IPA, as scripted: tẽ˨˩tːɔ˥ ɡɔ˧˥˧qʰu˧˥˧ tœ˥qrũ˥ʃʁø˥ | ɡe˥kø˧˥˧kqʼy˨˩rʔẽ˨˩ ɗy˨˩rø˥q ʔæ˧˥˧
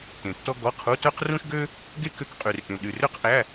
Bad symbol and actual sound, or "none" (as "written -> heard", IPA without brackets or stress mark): ʁ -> ɡ